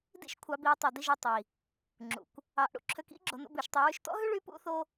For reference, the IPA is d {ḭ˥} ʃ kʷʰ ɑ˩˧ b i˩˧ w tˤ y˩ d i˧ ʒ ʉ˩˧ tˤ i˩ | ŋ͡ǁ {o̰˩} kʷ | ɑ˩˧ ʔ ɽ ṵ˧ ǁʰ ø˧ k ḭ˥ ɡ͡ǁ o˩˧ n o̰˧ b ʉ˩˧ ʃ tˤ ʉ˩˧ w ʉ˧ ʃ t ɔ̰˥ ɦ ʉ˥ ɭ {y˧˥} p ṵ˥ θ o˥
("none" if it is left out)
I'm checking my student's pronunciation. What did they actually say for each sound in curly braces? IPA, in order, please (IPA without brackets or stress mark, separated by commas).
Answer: ḭ˧, ṵ˩, y˧˥